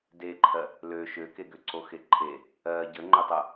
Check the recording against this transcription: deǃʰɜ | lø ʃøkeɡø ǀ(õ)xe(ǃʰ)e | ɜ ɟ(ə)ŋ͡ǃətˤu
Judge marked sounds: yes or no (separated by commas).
no, yes, yes